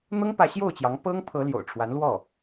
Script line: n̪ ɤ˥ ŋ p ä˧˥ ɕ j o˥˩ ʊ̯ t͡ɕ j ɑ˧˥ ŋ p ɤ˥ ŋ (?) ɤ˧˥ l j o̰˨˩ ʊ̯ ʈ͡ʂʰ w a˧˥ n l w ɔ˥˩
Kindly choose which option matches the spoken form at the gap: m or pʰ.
pʰ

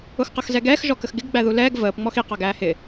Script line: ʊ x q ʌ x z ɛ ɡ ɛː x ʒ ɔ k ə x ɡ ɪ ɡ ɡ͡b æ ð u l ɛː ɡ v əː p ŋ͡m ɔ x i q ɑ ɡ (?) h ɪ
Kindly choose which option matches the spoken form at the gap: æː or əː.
æː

